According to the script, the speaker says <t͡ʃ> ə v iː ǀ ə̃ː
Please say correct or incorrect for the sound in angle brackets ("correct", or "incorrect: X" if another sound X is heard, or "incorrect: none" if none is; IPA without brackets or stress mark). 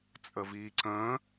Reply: incorrect: t͡sʼ